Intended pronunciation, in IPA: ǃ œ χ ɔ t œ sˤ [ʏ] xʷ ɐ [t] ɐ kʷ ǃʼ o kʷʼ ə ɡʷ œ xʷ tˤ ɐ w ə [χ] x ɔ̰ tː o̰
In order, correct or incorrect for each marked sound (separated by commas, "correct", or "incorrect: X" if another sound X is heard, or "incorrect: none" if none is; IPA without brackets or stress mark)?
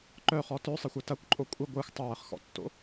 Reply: incorrect: ɪ, correct, correct